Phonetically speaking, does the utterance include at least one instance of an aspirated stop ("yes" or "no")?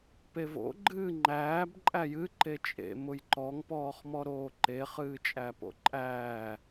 no